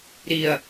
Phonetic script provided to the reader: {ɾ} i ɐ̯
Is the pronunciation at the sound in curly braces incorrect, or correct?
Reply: correct